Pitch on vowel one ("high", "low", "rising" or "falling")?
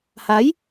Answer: rising